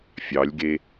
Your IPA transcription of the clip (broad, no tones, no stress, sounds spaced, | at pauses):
fʲ ɑ lʲ ɡ e